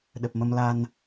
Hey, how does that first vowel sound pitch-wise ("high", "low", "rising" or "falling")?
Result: low